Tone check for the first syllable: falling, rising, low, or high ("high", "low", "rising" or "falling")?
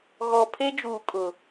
low